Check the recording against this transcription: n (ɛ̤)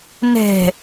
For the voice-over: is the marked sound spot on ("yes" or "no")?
yes